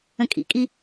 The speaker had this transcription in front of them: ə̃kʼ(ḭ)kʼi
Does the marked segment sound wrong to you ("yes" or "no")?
no